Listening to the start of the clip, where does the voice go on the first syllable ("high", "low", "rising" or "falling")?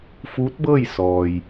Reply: rising